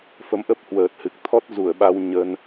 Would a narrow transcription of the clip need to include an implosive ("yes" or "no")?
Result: yes